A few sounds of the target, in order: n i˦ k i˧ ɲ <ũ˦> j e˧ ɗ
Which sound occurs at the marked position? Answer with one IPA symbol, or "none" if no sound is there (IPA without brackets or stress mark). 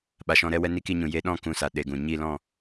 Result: ũ˨